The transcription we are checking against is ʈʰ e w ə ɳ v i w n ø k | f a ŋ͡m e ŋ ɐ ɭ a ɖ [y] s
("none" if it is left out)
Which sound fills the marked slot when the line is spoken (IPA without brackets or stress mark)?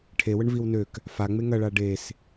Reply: e